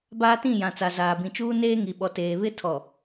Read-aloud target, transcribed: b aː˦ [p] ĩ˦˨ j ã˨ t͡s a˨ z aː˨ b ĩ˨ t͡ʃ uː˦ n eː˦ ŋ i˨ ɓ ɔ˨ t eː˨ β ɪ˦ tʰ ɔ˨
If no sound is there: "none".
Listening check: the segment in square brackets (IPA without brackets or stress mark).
t